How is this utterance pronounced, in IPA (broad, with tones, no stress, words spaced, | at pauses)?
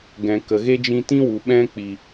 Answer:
ɡɛ̃˨ kə˨ɣe˦d͡ʒĩ˧ tĩ˦wu˨ ɓɛ̃˦ k͡pi˨